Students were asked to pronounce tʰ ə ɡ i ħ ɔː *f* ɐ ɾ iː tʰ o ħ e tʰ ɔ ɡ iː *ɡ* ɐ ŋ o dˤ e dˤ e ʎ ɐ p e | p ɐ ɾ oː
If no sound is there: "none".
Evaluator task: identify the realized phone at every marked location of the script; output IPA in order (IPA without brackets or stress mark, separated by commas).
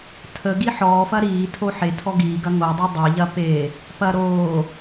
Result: f, ɡ